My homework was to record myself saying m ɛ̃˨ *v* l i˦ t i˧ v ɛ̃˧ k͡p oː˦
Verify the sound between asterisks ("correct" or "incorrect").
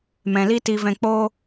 incorrect